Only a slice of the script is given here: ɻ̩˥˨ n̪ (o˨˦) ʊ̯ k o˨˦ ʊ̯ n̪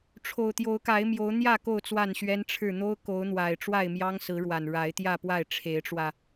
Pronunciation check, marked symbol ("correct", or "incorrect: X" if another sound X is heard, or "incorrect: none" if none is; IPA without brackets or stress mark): incorrect: o˦